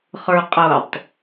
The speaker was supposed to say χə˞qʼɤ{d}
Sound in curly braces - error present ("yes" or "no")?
yes